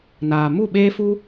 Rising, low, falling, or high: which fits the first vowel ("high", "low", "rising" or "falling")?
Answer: low